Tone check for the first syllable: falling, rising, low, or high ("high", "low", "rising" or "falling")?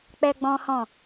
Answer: high